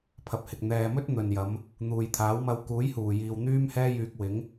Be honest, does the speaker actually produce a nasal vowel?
no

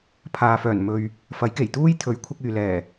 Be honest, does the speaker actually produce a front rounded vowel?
yes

